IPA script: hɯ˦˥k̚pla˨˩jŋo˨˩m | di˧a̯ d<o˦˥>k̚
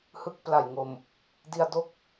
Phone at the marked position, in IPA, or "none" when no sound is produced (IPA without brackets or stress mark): o˦˥